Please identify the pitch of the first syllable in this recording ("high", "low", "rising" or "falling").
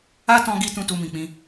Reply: high